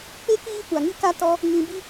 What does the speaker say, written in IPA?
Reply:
k͡pe˦ kiː˦kʷa˨ŋi˦ka˦ tɔ˦ | ŋĩ˧bi˦

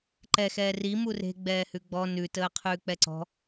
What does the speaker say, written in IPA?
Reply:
ǃɛxɛː ri mure̤ ɡ͡bɛːhʉɡ͡bɔ nʉ təːqʰʉːk͡pɛǀɔ̤

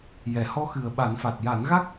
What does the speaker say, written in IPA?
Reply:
jɛ˨˩˦ hɔ˧˥xɨ˨˩ə̯ɓa˨˩˦nfa˨˩t̚ ja˨˩˦nɣa˦˥k̚

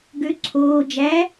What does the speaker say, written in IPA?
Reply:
ɡø ǀʰoː d͡ʒæ

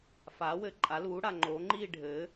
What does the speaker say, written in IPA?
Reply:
faː˨˥wɘː˨˥ǃʼa˨˥luː˨˥ ɽa˩˧ŋ͡ǃoː˨˥ŋ͡ǃiː˥˧ ɖʱɘː˨˥

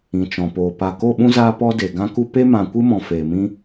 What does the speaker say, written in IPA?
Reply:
ĩ˨t͡ʃɔ̃˨poː˨ pa˨ko˦˨ɓũ˦ zaː˦pɔ˦de˨ ɡã˦ku˦ pe˦mã˨kʷɨ˦mɔ̃˨ feː˨mĩ˦

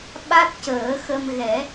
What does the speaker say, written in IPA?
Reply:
ɓa˦˥t̚cəː˨˩˦xə˧m ɣɛ˨˩˦

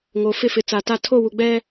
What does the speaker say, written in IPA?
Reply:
ŋo˨ fɪ˦˨fɪ˨t͡sa˨ta˦˨ tʰo˦˨wu˨ ɡ͡bɛ˦

